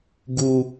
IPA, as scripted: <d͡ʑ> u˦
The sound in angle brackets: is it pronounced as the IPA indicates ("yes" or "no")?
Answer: no